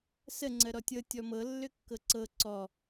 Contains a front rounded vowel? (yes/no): yes